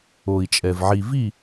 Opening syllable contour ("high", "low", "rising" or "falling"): low